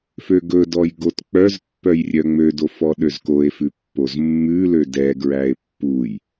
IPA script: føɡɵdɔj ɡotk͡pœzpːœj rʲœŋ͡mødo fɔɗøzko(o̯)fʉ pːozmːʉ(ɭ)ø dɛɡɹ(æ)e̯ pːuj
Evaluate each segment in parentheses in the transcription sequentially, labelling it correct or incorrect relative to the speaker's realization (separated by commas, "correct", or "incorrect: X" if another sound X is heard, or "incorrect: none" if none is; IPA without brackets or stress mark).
incorrect: e̯, incorrect: l, correct